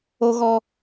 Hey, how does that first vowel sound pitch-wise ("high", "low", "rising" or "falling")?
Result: high